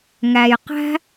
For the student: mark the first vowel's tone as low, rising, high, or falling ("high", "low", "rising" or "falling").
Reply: low